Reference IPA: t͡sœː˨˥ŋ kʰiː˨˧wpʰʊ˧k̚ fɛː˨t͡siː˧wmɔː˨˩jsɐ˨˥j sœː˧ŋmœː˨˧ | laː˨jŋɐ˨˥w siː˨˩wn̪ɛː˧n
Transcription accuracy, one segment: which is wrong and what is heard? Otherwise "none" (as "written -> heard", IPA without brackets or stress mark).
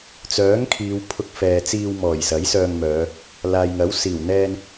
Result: none